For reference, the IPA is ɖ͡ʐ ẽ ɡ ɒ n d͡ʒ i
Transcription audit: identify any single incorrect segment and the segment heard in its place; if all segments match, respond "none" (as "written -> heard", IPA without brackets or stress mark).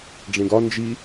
none